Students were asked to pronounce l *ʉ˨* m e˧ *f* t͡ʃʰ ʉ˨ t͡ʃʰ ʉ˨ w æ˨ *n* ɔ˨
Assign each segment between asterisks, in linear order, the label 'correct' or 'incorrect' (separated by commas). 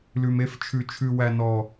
correct, correct, correct